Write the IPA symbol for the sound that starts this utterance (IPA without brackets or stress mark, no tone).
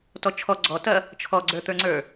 t